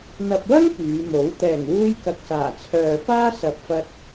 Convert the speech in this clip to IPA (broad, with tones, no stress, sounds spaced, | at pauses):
n̪ ɐ˨ p̚ w ɐ˥ ŋ p yː˨˧ m o˨˥ w t̪ ɛː˨˩ ŋ w uː˧ j k ɐ˨ k̚ s aː˨˩ t͡sʰ œː˨ f aː˥ s ɐ˨ p̚ f ɐ˧ t̚